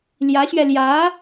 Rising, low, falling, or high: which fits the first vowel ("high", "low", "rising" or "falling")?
rising